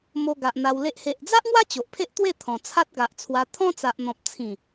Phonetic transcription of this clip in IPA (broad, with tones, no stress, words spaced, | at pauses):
mo˧ ɡa˨ʔ n̪a˧wle˦ʔ he˨ʔd͡za˦ʔŋwa˦ t͡ɕo˨ʔpʰe˦ʔt̪we˥˧t̪ʰɔ̃˨˩ t͡sʰa˦t̚ɡa˨ʔt͡sʰwa˧ t̪ʰɔ̃˦t͡sa˨ʔn̪ɔ̃˨p̚ t͡sʰĩ˨˩